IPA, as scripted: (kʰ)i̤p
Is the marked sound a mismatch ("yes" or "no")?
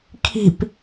no